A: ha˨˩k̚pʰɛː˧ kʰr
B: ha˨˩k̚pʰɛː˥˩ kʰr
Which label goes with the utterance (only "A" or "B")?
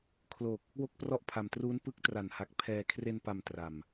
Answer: A